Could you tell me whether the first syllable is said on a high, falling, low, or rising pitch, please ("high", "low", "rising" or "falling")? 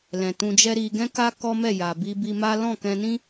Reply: low